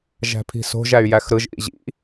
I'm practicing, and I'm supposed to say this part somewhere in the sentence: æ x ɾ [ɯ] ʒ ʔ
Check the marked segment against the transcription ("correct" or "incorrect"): correct